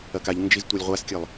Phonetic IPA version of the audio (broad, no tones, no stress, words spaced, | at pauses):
ɐkaʎnd͡ʒiz tʷɛlʲʁʷaskʲɘlˠ